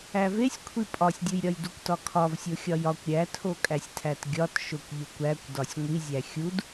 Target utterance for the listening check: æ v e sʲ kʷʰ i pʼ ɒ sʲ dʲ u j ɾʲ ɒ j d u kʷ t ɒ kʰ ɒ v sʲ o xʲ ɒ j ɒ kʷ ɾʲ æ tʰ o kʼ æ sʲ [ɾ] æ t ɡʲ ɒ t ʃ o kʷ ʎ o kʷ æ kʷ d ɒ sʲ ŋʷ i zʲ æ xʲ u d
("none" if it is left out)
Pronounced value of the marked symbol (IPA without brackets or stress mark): tʰ